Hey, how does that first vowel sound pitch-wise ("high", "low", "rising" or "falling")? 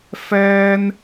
high